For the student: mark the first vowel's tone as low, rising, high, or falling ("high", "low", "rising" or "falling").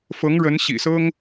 rising